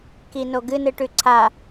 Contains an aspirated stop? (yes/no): yes